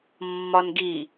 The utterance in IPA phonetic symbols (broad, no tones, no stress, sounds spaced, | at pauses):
mː ɒ n ɡ i